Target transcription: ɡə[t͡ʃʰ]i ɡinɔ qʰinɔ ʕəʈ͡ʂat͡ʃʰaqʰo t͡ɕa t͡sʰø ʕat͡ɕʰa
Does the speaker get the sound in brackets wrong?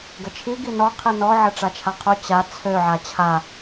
no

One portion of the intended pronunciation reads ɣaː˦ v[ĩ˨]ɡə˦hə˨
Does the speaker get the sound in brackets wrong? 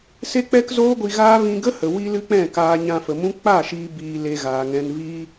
yes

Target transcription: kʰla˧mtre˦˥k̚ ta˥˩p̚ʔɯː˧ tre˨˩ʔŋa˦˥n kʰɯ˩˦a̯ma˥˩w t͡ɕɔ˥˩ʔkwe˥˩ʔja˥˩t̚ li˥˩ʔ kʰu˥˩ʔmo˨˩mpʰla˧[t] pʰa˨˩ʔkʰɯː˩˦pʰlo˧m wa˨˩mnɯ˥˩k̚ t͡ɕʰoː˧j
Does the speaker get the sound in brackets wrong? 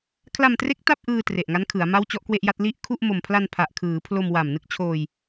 yes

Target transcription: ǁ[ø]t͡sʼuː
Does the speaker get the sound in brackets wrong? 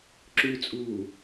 yes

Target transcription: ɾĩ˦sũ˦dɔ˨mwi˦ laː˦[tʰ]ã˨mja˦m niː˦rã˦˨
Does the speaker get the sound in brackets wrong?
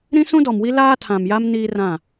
no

